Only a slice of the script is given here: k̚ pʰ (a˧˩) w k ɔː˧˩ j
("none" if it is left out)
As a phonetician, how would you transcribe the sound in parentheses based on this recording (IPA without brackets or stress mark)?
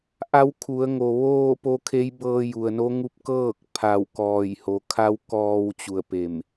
a˧˩